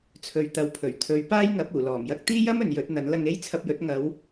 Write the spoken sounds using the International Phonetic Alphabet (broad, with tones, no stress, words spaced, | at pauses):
t͡sʰɵ˨ɥt̪ɐ˨wpʰɵ˨˩ɥ t̪ʰɵ˨˧ɥpaː˥jŋɐ˨˥p̚ uː˨˩lɔː˨˩mjɐ˥k̚ t̪iː˥jɐ˥m ɵ˨njɵ˨˥t̚n̪ɐ˨˥n lɐ˧ŋe˥jt͡sʰɐ˧p̚jɵ˨˥t̚ ŋɐ˨˧w